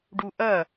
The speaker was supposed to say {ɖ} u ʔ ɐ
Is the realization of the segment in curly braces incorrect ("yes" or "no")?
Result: no